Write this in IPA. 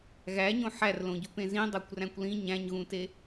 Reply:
ɣæɲõ ħærlõɟupẽ zĩdˤækʷræ̃kʷ lĩ ɲæ̃ɲɣũte

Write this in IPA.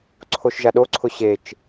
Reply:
ǀʰoʃʒaɗoǀʰʊ ɕet͡ʃ

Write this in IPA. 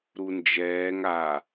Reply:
ɾund͡ʒɛːŋ a

